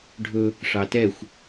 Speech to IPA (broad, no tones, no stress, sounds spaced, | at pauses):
ɖʱ ɵ | ʂ ɑ t ɛ xʷ